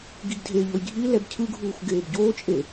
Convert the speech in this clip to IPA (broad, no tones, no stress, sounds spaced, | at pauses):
ɡ i ɡ dʱ e ʎ o j ɡʱ i l ɛ b cʰ ɯ ɡʱ uː xʷ ɡ eː b ɟ oː t͡ʃʼ e